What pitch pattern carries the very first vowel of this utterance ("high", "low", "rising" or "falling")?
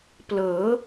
rising